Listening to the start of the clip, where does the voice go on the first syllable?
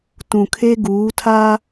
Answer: low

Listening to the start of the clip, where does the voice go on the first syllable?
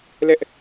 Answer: high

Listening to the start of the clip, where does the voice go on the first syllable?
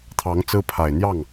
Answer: rising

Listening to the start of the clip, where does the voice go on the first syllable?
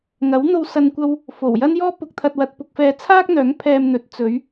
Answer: rising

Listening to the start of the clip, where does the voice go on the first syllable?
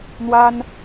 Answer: high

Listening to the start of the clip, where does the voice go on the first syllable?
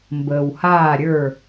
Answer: low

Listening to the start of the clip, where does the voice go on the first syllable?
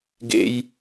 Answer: high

